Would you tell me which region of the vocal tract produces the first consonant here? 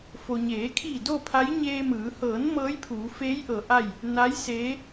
lips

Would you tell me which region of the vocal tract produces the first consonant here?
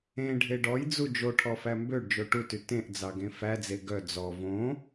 retroflex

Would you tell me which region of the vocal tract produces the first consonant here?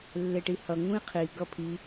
tongue tip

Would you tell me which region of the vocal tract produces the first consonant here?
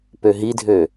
lips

